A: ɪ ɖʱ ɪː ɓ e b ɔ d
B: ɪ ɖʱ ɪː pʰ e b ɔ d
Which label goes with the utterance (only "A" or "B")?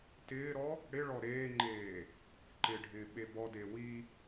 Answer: A